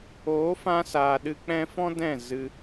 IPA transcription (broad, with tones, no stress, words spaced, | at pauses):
oː˨˦fã˧saː˨ ɗɨ˧k͡pɛ̃˦ fɔ̃˦dɛ̃˦˨ zɨ˧